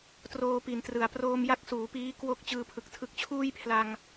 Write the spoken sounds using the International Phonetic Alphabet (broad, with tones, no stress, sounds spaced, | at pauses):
t r oː˧ p i˩˦ n t r ɯ˩˦ a̯ p r oː˧ m j a˦˥ k̚ s uː˩˦ p iː˦˥ k w o˦˥ k̚ t͡ɕ ɯː˧ pʰ ɯ˨˩ k̚ tʰ ɯ˦˥ k̚ t͡ɕʰ uː˥˩ j pʰ l a˧ ŋ